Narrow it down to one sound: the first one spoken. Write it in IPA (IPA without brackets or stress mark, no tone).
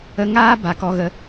ə